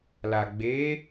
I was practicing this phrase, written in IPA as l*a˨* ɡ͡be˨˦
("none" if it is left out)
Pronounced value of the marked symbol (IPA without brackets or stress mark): a˨